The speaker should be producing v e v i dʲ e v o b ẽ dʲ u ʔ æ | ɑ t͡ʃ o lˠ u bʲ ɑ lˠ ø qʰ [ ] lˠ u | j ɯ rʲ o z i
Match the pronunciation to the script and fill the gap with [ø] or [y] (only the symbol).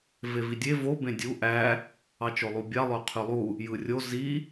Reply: y